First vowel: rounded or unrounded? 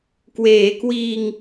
unrounded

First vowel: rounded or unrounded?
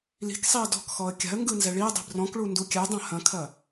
unrounded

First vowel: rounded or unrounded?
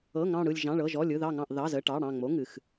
unrounded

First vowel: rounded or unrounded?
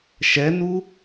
unrounded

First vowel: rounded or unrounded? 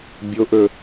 rounded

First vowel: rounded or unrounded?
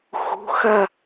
rounded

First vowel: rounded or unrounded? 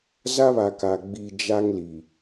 unrounded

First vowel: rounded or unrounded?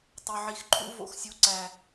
rounded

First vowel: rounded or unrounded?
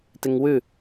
unrounded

